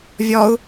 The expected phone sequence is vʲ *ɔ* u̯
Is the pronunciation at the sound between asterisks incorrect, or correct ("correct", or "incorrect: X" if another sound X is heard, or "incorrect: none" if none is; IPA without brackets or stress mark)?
correct